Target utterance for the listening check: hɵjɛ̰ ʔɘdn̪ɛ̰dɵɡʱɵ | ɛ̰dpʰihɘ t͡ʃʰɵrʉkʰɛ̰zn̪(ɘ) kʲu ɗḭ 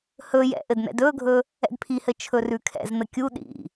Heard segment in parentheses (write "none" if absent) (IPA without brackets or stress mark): ɘ